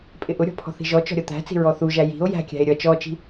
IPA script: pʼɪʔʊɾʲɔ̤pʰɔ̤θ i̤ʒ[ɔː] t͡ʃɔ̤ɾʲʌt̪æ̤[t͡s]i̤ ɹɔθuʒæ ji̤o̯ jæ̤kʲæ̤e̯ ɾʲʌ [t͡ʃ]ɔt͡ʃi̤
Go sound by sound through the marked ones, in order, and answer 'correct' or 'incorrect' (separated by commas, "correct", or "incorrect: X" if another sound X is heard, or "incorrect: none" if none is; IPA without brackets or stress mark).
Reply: incorrect: ɔ, correct, correct